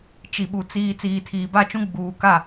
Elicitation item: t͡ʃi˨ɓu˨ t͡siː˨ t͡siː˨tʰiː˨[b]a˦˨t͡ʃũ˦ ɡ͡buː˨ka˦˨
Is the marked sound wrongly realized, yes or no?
no